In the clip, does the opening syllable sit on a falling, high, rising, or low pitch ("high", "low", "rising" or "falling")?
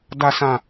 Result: low